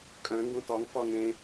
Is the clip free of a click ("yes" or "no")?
yes